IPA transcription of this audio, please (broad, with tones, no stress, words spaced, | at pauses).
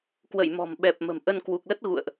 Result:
kwə̰˧˨jmɔ̤˨˩mɓɛ˨˩p̚ mə̤˨˩mʔə˧n kwu˨˩k̚lə˦˥t̚ ɣṵ˧˨ə̯ʔ